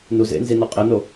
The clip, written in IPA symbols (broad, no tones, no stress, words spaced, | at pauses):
nuzḛnzi nɔqʼeno